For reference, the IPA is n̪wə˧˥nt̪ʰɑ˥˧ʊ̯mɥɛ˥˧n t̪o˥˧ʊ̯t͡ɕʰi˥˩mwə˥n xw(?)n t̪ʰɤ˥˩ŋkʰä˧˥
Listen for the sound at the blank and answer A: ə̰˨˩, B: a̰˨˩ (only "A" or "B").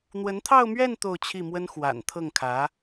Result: B